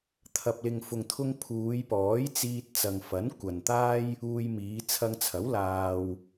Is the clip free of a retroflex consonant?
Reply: yes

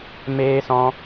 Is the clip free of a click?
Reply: yes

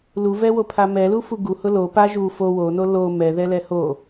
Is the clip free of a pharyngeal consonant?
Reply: yes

